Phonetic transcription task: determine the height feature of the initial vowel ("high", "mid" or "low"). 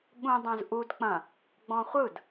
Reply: high